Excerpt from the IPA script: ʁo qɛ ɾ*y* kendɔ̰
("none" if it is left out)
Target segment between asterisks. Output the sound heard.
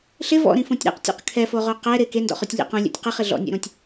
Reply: ɪ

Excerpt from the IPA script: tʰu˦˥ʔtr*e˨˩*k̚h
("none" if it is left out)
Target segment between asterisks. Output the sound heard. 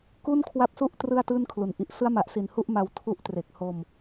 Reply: e˨˩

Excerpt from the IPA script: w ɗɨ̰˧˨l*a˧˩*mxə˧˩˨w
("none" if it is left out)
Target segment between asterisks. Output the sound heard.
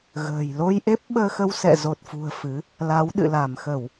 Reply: a˧˩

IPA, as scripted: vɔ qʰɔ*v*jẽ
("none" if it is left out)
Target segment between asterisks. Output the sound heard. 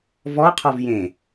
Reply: v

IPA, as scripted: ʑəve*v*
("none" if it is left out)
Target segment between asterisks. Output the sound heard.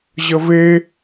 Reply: none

